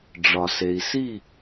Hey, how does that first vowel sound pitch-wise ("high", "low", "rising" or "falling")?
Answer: low